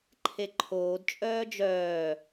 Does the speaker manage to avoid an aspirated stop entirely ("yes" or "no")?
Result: no